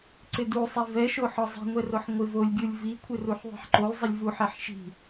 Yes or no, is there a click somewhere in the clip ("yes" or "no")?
yes